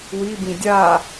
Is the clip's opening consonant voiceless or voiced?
voiced